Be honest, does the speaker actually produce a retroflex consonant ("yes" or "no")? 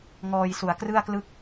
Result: no